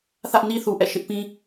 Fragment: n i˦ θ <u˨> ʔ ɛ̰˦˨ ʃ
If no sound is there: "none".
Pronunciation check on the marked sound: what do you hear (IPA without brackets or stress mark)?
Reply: u˨